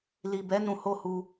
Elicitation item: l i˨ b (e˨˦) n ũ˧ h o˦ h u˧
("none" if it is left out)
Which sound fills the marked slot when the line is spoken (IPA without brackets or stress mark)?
ɛ˨˦